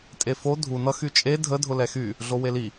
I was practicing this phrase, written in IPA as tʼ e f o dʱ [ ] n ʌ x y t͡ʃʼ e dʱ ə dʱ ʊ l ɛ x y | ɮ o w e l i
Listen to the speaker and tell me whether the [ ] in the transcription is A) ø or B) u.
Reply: B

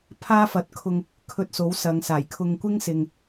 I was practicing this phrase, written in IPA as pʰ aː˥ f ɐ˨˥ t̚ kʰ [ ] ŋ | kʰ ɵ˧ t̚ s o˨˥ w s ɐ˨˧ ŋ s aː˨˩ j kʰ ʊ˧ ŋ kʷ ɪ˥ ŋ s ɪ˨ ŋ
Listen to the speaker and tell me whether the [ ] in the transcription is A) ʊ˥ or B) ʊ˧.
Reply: B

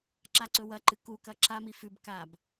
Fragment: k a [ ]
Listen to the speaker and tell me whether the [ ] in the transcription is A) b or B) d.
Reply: A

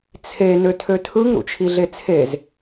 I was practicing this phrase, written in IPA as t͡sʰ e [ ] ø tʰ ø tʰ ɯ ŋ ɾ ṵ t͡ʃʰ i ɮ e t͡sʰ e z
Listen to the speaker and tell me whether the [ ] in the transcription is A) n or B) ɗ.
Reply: A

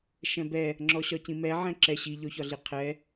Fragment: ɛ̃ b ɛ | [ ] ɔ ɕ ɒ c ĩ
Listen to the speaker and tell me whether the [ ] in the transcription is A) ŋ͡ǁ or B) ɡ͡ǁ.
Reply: A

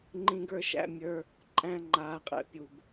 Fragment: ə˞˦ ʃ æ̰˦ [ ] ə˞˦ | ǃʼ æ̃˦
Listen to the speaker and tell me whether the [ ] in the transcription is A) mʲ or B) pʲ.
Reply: A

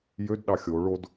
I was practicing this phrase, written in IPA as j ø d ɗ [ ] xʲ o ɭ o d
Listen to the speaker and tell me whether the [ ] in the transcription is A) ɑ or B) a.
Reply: A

